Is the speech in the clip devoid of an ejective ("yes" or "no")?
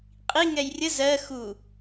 no